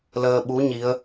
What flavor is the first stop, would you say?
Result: implosive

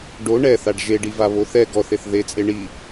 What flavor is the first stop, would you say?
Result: plain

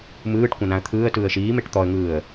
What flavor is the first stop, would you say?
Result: plain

